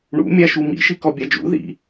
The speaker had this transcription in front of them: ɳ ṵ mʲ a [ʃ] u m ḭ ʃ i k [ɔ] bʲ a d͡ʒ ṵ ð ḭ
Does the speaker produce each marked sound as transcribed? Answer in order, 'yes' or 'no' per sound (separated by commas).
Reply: yes, yes